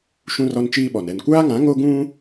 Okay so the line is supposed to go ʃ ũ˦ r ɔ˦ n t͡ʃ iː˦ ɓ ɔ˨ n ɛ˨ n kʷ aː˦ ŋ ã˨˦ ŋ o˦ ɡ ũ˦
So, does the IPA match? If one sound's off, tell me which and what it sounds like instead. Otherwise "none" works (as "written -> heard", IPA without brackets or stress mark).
none